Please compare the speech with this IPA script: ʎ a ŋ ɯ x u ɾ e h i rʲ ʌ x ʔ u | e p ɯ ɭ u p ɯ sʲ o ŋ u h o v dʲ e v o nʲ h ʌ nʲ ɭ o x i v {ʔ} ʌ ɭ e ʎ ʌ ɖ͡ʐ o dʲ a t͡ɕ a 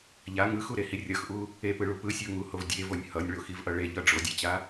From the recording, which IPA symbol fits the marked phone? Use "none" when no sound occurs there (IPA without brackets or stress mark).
ʔ